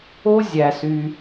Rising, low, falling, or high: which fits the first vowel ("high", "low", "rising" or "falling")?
high